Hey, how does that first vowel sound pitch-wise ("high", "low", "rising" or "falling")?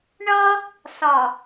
high